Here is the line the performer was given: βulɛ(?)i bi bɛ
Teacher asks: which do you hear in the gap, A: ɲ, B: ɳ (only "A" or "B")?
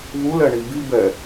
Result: B